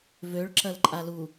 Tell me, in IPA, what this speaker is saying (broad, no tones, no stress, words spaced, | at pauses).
vøɭǁɐl ǃʼalu